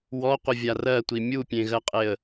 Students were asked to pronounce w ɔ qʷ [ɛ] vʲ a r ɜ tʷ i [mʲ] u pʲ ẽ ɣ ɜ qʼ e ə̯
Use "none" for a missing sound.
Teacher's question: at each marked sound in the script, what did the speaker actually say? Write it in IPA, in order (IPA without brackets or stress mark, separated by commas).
ɘ, mʲ